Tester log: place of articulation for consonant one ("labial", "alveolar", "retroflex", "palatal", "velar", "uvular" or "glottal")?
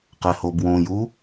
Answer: uvular